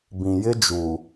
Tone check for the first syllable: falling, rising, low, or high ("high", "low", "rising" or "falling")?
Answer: low